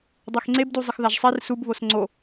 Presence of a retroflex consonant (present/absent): absent